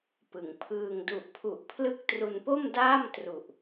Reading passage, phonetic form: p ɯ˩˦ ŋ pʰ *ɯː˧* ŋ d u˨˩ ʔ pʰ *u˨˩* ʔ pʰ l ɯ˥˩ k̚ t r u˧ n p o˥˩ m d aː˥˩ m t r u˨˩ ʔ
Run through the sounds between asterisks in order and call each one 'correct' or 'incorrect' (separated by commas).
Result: correct, correct